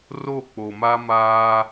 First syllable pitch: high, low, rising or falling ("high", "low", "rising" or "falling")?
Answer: falling